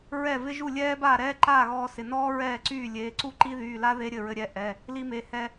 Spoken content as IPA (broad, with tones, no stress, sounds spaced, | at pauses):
ɹ ɛ˥˩ v ɪ˦˥ ʒ u˥˩ lʲ ɛː˦˥ b aː˥˩ ɾ ɛː˦˥ ǃ aː˥˩ ɣ ɔː˧ s ɪ˩˧˩ n ɔː˦˥ ɹ ɛː˥˩ ǀ yː˥˩ lʲ eː˩˧˩ ǀ u˦˥ ǃ i˦˥ ð yː˩˧˩ l a˦˥ ð e˦˥ ɾʲ ɘ˥˩ ɹ ɘ˧ ɾʲ ɛ˩˧˩ ʔ ɛ˩˧˩ | l i˧ m e˩˧˩ h ɛ˧